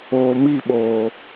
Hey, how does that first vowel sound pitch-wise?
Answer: low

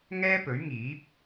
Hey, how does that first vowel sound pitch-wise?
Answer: high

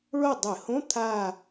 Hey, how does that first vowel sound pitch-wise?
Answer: falling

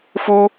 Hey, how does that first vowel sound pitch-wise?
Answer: high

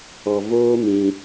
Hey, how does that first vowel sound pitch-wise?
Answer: low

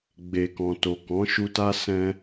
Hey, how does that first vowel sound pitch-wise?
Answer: low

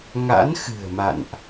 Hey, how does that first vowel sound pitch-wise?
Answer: rising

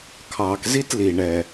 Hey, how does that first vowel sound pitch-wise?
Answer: low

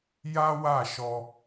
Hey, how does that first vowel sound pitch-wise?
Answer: high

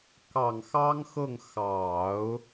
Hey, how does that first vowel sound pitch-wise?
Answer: low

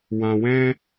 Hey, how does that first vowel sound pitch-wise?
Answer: low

